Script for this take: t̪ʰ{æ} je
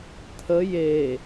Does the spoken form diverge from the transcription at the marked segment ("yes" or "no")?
yes